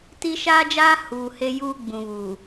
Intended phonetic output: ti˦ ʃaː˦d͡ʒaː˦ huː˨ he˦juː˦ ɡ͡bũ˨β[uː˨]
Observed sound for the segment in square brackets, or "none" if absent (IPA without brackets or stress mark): uː˨